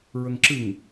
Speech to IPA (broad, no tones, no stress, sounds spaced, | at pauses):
ɹ ə ŋ ǁ ɨ ŋ